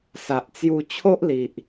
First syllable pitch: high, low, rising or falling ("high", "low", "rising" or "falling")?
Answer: low